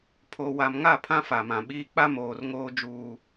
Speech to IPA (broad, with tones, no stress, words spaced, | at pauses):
pʰo˨wa˨mŋa˦˨ pʰã˦fa˨mã˨ɓiː˦ k͡pa˦moː˨rŋoː˦ d͡ʒuː˦